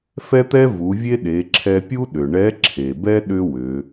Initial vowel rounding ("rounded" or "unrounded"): unrounded